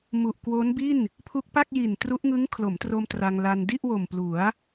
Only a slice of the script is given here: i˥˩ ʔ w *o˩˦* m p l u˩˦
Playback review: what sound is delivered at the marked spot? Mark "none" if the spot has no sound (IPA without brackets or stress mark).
o˨˩